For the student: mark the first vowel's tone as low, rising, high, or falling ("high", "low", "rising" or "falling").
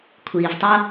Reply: low